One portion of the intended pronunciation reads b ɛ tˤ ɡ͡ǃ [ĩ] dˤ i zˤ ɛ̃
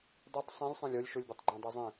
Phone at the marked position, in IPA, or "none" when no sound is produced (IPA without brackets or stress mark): ẽ